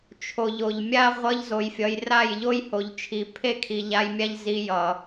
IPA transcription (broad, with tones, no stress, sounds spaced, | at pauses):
t͡ʃʰ o˨ ʎ o˨ ʎ mʲ a˦ ʁʷ ʌ˧ ʎ z o˧ j fʲ ʌ˧ j r a˦˨ j ʎ o˦ j h o˨ ʎ t͡ʃʰ i˨ pʰ e˦ kʰ i˨ ʎ a˧ j mʲ a˦ ʎ z i˧ j ʌ˨